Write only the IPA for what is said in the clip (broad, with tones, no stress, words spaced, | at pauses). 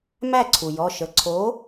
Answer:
mæ˥˩ǀʰu˩jɔ˩˧˩ʃə˩˧˩ ǀʰo˨˥